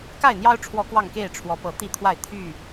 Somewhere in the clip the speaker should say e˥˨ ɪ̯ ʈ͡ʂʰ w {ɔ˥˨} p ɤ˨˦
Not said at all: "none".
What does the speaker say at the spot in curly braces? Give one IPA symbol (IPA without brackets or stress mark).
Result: ɔ˨˦